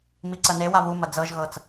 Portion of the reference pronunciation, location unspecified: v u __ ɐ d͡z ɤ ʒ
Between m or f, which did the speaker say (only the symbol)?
m